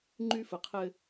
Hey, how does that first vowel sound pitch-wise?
high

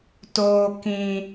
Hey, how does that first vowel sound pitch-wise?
high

